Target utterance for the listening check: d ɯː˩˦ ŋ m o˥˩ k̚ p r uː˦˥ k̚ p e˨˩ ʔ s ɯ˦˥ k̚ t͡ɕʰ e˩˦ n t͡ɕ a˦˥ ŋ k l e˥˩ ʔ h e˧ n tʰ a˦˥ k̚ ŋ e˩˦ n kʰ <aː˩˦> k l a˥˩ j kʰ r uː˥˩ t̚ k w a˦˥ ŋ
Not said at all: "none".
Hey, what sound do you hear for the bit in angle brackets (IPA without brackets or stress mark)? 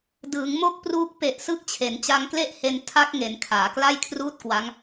aː˩˦